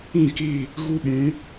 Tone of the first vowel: falling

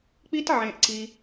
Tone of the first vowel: high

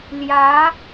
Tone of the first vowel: rising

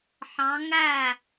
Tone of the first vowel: rising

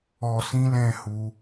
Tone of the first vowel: low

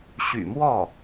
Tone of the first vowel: low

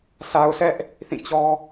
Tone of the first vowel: low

